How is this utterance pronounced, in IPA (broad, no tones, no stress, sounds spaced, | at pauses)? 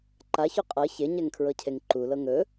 ǃ a ç y qʼ ɤ ç e ɲ ɛ ŋ kʰ ɹ ɤ cʰ e ŋ ǃ u l ɤ ŋ ɵ